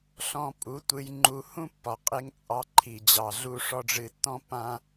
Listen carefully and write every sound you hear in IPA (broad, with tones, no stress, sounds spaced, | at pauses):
ɬ ɔ̃˧ pʼ u˨˦ tʷ ɨ˧ j ŋ͡ǃ u˧ h ũ˦ pː ɒ˨ qʼ e˧ ŋ t͡sʼ ɑ˧ ǃʰ i˨ d͡ʑ ɑ˨ ɮ u˧ ʂ ɔ˧ ɖ͡ʐ ɨ˧ tː ɔ̃˦ pː ã˦